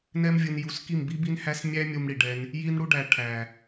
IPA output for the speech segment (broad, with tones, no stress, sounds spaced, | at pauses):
n ɛ˧ m vʲ ɯ˨ n j u˨˦ s k i˦˨ m b i˦ b i˦ n h æ˦ s mʲ æ˦ mʲ u˧ m ɽ i˨ ɖ ɛ˧ n | j i˧ n ɽ u˧ ɖ æ˨ ʈʰ æ˨